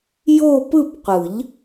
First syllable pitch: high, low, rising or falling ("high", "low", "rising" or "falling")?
falling